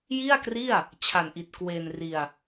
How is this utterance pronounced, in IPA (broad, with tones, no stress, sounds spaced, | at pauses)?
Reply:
j i˥˩ a̯ k r i˥˩ a̯ | t͡ɕʰ a˨˩ n ʔ i˨˩ t̚ k w e˧ n r i˧ a̯